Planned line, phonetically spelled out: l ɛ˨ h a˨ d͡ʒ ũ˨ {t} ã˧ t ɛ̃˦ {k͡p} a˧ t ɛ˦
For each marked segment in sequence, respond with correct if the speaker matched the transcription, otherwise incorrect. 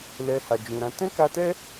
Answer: incorrect, incorrect

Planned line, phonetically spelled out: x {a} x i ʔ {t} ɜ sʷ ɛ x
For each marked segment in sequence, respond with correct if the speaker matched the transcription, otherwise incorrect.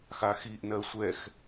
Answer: correct, incorrect

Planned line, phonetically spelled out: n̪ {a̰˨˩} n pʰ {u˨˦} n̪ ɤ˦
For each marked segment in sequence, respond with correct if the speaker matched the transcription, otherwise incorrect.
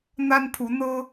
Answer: incorrect, correct

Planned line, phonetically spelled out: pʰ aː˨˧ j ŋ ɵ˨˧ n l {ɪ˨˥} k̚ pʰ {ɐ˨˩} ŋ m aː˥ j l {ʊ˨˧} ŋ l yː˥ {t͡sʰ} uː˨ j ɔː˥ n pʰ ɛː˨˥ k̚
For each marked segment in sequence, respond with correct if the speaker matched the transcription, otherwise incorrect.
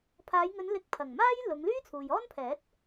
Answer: correct, correct, correct, correct

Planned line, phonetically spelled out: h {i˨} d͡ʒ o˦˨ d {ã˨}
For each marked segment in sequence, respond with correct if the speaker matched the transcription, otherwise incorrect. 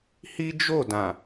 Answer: incorrect, correct

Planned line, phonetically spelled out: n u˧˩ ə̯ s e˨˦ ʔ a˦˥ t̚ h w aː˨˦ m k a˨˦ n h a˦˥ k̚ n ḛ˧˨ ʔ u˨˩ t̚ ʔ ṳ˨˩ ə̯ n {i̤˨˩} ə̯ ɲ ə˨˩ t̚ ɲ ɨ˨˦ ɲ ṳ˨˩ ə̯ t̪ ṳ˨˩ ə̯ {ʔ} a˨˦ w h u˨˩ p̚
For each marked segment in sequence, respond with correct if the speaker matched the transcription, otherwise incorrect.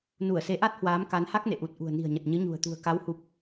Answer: correct, incorrect

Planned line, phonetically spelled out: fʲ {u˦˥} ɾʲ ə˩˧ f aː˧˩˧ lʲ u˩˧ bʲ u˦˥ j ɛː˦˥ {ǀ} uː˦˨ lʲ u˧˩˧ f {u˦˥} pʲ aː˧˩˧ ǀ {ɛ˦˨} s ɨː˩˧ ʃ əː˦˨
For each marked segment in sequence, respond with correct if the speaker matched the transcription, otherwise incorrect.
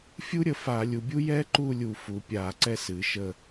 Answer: correct, incorrect, incorrect, correct

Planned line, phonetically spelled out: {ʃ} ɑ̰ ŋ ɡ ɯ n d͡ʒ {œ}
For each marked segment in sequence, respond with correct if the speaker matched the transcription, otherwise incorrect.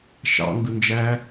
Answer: correct, incorrect

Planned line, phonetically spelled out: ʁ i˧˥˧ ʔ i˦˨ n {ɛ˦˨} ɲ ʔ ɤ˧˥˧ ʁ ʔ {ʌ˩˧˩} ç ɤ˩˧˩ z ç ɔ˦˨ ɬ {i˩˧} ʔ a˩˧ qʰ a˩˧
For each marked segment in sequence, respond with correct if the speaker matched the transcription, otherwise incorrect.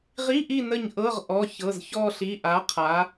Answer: incorrect, incorrect, incorrect

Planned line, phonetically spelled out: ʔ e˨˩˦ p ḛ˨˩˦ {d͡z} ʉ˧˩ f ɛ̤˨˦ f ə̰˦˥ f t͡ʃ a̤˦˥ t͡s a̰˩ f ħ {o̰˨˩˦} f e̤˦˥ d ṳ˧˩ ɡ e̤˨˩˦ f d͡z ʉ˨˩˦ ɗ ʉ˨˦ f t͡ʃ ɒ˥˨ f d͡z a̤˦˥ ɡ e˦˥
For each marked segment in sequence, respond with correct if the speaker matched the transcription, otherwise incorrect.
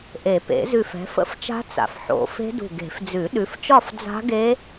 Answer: incorrect, correct

